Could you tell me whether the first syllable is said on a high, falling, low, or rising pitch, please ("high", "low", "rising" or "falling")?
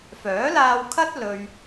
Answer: rising